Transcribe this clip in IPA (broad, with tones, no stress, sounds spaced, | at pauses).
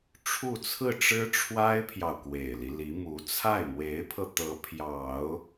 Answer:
ʈ͡ʂʰ u˥˧ t͡sʰ ɹ̩˥˩ ʈ͡ʂ ɻ̩˥ ʈ͡ʂʰ w a˥ ɪ̯ pʰ j ɑ˨ ʊ̯ k w e˨˩ ɪ̯ l i˦ l i˧˥ m u˧˥ t͡sʰ a˥˩ ɪ̯ m w e˧˥ ɪ̯ pʰ ɤ˧ t̪ ɤ˧˥ pʰ j ɑ˨˩˦ ʊ̯